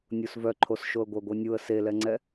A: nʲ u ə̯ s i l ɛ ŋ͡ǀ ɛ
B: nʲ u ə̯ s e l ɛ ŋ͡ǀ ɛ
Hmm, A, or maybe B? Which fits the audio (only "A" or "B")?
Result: B